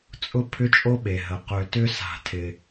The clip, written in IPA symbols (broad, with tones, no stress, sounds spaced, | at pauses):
t͡sʼ ʊ˦ pʰ ʏ˦ t͡ʃʼ o˦ ɓ e˨ ɦ ə˨ q ø˨ t ʏ˦ s a̤˦˨ tʰ ɪ˦